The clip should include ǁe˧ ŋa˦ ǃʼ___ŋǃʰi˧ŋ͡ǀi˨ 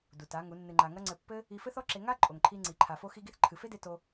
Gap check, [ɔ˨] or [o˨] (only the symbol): o˨